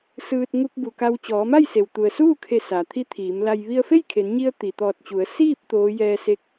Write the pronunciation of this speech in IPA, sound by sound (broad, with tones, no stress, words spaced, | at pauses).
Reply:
sɯː˧t̚ ŋu˧k̚bu˩ ka˧w t͡ɕɔː˩˧ma˥˨j se˩wt̪u˩ə̯suː˥˨kʰe˧˩ sa˩t̪ʰi˧˥t̪ʰiː˩˧mla˧j ʋi˧ə̯fe˥˨jkʰe˩˧nɲi˧ə̯ t̪i˩t̪ɔː˧˩t̚t͡ɕu˩˧ə̯ siː˥˨p̚ t̪oː˧˥ jɛː˧se˧˥k̚